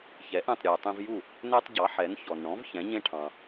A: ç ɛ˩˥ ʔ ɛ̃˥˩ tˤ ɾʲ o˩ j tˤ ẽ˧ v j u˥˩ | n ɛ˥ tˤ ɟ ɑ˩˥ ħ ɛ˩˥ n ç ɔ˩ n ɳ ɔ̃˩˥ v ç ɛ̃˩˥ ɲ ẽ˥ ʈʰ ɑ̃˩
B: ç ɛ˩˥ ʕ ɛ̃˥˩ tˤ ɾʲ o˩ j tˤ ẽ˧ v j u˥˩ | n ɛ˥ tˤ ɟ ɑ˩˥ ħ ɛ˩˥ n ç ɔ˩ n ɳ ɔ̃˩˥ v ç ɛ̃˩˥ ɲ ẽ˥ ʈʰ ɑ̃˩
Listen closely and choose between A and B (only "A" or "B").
A